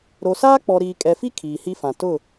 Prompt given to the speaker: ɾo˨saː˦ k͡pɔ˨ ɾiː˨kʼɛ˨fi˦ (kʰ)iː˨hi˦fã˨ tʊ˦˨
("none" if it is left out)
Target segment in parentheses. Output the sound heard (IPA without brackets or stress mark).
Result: kʰ